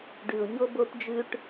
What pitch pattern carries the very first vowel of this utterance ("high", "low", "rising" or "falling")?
low